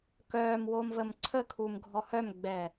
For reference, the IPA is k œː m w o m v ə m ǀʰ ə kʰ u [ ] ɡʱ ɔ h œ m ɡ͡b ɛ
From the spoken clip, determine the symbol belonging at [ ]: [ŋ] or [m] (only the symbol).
m